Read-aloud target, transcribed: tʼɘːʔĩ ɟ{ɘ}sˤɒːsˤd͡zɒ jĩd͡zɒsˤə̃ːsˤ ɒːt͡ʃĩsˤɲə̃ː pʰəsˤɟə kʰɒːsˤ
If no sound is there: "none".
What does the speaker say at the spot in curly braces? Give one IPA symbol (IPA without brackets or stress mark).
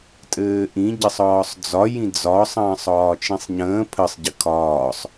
ɘ